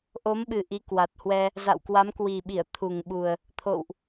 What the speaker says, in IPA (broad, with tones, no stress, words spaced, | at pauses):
ʔo˨˦mɓɨ˨˩ ʔi˨˦kwa˨˩t̚hwɛ˧ | za̰˧˨wkwa˨˦mkwi˨˩ɓi˧˩ə̯ t̪ʰu˨˩ŋɓu˨˩ə̯ | t̪ʰo̰˧˨wʔ